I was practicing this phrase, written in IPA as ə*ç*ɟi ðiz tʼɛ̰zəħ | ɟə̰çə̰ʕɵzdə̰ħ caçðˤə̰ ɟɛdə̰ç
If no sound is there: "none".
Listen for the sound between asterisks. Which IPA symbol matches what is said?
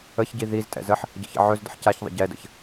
ç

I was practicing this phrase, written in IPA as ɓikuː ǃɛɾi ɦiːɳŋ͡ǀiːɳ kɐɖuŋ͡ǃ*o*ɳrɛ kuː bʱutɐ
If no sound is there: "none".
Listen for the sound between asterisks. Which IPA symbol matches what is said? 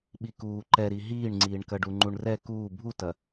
u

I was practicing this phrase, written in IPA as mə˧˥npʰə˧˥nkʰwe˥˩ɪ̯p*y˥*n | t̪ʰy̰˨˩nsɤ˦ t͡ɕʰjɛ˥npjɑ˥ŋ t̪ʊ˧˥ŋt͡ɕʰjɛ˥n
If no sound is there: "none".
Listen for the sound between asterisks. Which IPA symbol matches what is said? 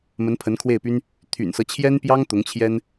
y˥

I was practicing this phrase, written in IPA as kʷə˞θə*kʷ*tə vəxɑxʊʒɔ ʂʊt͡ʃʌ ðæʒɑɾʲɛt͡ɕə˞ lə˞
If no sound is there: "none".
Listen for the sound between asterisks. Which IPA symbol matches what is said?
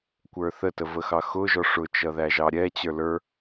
none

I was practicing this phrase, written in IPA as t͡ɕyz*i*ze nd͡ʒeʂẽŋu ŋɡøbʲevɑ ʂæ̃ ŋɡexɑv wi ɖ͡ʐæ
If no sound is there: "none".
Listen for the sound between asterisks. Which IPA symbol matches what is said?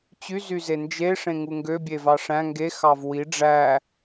y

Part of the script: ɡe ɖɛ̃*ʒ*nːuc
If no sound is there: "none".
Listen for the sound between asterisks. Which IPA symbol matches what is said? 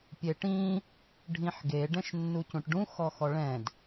ʃ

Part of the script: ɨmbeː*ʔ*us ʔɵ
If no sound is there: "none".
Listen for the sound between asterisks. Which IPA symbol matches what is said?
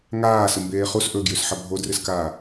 χ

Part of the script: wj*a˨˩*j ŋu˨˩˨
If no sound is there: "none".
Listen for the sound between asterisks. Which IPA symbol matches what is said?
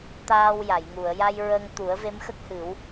a˨˩˨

